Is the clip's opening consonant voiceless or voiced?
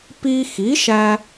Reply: voiceless